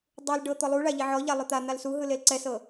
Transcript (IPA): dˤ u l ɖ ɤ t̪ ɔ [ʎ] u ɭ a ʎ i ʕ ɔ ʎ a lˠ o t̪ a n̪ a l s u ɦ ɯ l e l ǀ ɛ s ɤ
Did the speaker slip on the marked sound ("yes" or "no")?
yes